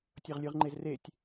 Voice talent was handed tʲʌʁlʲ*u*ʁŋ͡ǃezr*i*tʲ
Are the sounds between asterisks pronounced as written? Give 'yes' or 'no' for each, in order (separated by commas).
no, no